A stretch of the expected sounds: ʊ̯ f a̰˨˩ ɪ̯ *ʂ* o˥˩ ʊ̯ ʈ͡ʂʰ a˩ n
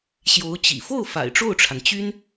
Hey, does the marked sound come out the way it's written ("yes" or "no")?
no